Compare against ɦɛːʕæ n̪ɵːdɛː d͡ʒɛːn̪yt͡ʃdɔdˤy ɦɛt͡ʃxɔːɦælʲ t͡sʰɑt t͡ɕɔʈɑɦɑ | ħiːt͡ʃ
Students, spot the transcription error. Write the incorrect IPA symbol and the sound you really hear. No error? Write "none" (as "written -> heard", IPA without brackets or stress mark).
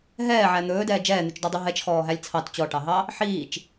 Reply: none